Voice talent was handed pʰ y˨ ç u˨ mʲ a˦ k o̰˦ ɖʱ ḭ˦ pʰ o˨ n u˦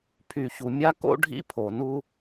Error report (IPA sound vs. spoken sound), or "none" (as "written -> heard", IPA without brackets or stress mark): none